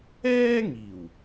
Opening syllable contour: high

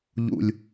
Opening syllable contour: low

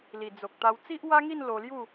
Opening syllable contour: low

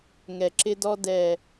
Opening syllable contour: low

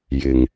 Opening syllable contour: low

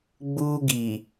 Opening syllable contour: high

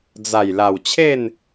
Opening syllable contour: low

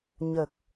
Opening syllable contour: low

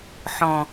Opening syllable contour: low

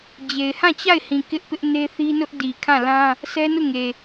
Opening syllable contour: low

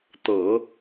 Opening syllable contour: low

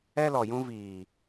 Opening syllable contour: high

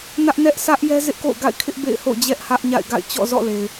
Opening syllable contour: high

